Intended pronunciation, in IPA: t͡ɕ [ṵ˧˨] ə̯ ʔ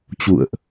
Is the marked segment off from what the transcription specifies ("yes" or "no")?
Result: no